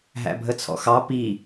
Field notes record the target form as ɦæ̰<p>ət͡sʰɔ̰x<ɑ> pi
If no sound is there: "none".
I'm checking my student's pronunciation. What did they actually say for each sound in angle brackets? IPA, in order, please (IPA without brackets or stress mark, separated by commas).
bʱ, ɑ